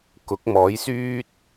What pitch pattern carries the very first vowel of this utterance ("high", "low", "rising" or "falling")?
rising